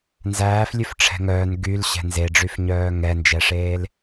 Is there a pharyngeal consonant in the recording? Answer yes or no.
no